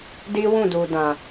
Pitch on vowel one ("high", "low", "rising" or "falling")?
high